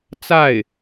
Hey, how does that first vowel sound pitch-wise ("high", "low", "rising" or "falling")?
falling